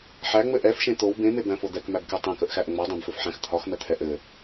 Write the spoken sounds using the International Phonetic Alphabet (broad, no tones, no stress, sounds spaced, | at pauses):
ħ æ ŋ͡m ɘ ʔ ɛ f ʃ ẽ t̪ o w b ẽ m e b æ̃ f o d̪ ɛ k m æ b k e tˤ ẽ k ə ʔ x æ ʔ ŋ͡m ɔ dˤ ẽ b f ɘ f ħ æ̃ x t̪ʰ ɒ x m ɛ t̪ʰ ɛ ʔ ɘ